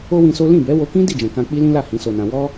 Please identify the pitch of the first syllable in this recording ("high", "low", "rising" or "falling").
high